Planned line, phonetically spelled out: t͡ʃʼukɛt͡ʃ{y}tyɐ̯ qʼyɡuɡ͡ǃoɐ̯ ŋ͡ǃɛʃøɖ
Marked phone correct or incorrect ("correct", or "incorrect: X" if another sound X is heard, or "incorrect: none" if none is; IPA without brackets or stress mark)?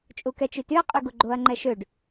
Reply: correct